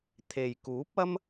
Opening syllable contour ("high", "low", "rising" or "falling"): low